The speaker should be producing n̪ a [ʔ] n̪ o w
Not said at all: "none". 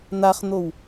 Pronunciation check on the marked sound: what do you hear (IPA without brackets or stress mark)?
χ